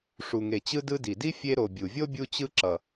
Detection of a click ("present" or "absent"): present